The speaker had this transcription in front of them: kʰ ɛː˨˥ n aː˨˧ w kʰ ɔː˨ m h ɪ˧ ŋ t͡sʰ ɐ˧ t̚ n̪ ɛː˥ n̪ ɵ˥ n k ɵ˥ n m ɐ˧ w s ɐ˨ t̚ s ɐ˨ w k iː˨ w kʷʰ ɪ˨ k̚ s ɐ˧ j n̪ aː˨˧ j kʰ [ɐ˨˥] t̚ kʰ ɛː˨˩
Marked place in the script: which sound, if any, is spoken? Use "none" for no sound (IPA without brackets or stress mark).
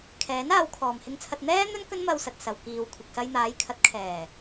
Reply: ɐ˨˥